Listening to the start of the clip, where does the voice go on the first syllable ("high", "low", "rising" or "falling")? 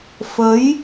rising